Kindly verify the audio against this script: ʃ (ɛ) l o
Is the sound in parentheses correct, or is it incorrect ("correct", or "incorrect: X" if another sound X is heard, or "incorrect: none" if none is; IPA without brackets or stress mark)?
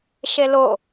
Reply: incorrect: e